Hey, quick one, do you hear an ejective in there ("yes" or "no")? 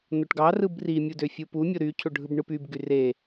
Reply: no